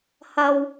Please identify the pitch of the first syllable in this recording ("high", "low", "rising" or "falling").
low